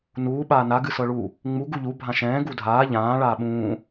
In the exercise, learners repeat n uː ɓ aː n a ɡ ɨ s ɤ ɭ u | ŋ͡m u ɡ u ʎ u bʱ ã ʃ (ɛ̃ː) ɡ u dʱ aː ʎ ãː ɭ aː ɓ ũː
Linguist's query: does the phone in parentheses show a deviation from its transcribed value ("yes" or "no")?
no